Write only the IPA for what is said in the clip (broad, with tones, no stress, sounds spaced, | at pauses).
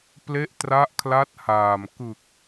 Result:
p l e˦˥ ʔ t r a˦˥ ʔ kʰ l a˦˥ t̚ h aː˨˩ m k ɯ˨˩ k̚